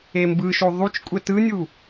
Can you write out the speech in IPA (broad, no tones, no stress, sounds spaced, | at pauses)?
e m b ɯ ʃ o ðˤ u t͡ʃ kʷʼ ɛ t ɯ nʲ u